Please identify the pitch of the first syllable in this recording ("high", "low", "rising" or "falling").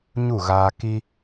falling